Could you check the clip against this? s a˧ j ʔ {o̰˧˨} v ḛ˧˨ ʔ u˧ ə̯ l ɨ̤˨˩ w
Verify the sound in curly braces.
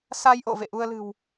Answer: correct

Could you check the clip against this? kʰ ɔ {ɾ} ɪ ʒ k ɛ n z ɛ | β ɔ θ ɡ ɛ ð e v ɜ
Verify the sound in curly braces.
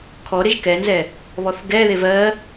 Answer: correct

